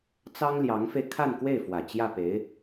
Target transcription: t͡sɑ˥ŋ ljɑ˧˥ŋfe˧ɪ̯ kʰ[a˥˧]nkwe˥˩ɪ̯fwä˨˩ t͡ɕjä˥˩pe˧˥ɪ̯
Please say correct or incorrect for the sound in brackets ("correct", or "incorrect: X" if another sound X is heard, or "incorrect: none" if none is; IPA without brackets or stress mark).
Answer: correct